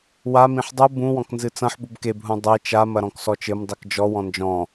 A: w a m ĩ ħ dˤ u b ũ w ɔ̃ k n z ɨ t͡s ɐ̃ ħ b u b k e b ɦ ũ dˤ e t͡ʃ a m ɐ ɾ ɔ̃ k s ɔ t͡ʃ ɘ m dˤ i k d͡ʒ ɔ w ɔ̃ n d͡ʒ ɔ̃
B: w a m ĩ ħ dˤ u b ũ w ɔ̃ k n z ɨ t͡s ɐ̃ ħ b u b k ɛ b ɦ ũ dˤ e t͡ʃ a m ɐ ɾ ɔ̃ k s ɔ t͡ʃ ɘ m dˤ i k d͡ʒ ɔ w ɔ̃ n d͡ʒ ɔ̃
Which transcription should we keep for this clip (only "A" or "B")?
A